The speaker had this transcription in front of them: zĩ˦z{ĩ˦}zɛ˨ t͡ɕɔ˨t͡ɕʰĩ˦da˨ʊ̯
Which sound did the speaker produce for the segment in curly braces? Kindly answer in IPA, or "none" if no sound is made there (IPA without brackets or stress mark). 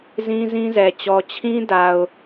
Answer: ĩ˦